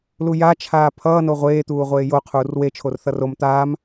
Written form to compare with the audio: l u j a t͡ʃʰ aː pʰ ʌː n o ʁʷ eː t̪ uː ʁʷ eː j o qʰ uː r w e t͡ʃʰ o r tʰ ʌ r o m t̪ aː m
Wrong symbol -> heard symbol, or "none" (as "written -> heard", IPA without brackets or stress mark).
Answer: tʰ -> θ